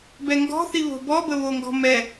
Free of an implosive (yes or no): yes